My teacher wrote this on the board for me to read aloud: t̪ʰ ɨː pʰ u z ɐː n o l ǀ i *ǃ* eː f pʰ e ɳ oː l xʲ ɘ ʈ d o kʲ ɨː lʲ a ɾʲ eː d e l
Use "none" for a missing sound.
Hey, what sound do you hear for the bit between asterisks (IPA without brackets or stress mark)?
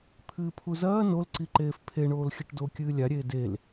ǃ